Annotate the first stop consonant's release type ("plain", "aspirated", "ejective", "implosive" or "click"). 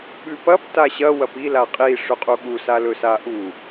implosive